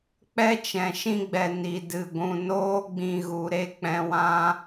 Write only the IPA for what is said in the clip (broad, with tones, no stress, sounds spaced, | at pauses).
k͡p ɛ˦ t͡ʃ ɛ̃˨ ʃ ĩ˧ ɡ͡b ɛ˨ n i˨ d ɨ˨ ɡʷ ũ˨ n oː˦ ɡ͡b ĩ˧ ɣ u˨ ɾ e˦ k͡p ɛ̃˧ w ã˦